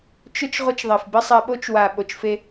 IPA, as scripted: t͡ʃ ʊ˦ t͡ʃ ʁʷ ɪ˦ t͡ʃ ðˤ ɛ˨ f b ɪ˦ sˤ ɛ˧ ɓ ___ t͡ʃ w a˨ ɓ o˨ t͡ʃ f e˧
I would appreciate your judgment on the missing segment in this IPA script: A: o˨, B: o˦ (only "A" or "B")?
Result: B